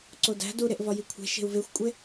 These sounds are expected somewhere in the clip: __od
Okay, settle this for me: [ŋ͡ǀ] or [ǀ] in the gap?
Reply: ǀ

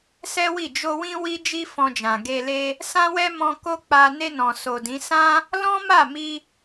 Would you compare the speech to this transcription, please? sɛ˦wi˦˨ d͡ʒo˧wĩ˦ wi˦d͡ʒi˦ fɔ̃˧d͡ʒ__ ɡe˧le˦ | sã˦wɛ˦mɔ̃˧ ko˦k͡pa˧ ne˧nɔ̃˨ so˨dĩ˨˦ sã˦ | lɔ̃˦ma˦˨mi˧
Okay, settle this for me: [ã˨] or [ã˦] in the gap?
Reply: ã˨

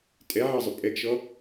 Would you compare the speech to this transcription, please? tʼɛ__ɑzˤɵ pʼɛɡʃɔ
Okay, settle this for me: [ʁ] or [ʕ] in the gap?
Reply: ʕ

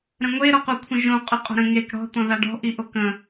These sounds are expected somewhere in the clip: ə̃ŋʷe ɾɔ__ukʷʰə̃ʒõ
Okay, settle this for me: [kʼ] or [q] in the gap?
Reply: q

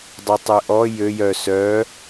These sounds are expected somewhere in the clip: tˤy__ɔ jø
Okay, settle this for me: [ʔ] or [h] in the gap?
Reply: ʔ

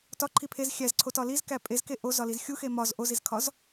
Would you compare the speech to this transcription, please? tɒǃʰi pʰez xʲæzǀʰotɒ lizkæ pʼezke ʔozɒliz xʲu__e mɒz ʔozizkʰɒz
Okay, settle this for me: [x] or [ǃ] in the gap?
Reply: x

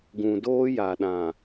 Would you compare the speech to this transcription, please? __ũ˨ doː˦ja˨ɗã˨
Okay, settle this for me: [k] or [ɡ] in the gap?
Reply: ɡ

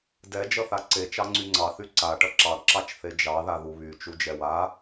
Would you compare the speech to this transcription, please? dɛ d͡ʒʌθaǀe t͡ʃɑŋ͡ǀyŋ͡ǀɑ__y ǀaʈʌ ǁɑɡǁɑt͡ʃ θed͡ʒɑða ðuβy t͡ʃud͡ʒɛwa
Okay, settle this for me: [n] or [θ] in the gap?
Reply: θ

